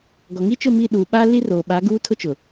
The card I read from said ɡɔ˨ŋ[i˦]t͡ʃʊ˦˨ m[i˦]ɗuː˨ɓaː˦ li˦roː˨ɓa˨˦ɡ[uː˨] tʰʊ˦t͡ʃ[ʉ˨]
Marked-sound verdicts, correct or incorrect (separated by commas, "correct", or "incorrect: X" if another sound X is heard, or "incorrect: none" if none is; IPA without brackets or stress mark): correct, incorrect: i˦˨, incorrect: uː˦, incorrect: ʊ˨